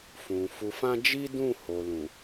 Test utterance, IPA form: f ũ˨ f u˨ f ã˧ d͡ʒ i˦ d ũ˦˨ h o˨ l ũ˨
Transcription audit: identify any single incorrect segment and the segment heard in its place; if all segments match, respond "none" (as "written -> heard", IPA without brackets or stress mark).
none